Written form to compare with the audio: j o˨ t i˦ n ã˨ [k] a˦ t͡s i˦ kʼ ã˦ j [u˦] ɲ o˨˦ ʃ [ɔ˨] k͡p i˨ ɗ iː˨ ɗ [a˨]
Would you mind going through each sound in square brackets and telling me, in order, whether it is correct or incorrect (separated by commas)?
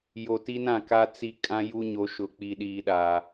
correct, correct, incorrect, incorrect